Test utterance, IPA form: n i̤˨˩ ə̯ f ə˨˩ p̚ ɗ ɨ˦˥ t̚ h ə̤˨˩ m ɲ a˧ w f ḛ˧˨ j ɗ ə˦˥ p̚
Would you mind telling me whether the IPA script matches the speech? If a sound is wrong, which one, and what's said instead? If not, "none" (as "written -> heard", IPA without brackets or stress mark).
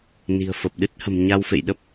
none